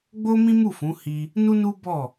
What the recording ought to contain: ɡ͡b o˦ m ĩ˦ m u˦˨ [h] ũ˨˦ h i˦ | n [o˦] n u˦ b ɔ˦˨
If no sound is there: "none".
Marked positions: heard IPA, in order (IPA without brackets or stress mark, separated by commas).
f, u˦